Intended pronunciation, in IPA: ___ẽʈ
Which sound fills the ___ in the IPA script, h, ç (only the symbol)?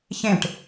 ç